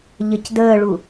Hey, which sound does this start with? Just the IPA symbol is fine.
ʎ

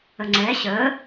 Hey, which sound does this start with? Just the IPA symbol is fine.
ə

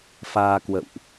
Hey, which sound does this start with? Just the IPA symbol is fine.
f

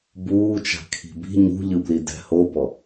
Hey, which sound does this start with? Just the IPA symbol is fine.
b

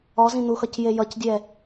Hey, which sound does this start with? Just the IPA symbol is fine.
ɔ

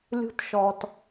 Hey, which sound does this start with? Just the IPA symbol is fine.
lʲ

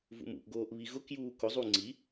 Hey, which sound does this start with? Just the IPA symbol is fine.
v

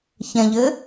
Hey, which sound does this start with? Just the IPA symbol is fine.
ç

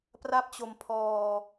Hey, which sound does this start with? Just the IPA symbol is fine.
p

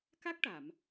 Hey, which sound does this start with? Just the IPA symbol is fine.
k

